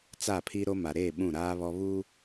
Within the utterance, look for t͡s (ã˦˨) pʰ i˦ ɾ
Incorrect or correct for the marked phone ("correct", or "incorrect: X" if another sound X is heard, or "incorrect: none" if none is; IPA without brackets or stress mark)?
incorrect: a˦˨